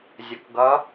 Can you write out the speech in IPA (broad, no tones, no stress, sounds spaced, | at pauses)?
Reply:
zʲ ʊ k ɡ ʌ